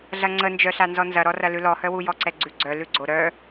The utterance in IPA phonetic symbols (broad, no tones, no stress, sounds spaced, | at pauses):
ɮ ɐ ŋ͡ǀ ə n d͡ʒ œ ɬ a n z ɔ n z ɐ ɾ ɔ r ɐ l ʉ l ɔ h œ w u j ɔ ǀ ɛ ɡ͡ǀ ʉ ɡ͡ǀ œ l ʉ ɡ͡ǀ o ɾ œ